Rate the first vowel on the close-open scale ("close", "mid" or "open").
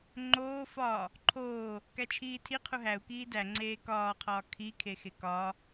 mid